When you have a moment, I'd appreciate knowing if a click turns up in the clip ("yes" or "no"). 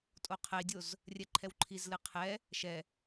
yes